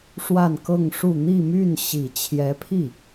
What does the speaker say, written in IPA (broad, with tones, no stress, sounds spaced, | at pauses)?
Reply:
ʂ w a˥˧ n k ɤ˥˧ ŋ ʂ u˥˧ n̪ i˥˧ m y˥˩ n ɕ i˨˩ t͡ɕʰ j ɛ˧˥ pʰ i˥˩